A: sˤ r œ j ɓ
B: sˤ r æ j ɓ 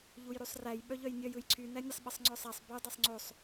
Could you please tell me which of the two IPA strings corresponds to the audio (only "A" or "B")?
B